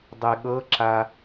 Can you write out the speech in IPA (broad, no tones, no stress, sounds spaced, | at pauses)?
dˤ e ɠ ɤ ǁ a